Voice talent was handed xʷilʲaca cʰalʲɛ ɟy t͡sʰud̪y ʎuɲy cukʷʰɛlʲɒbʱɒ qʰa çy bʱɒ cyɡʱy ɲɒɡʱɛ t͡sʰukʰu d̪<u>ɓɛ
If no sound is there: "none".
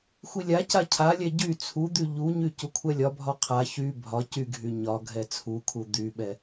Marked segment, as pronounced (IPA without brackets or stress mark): y